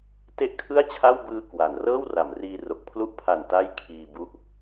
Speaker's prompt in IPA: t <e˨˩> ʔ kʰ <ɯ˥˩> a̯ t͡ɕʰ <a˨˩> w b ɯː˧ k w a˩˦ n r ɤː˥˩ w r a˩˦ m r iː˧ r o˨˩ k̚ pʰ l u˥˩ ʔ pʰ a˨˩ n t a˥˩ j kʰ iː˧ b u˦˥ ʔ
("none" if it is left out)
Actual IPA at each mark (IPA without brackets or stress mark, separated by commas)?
e˥˩, ɯ˥˩, a˥˩